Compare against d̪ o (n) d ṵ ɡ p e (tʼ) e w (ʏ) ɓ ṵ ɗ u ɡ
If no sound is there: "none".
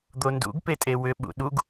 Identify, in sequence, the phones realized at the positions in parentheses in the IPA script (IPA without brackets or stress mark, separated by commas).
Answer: n, tʼ, ʏ